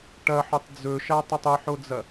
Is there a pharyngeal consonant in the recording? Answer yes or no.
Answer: yes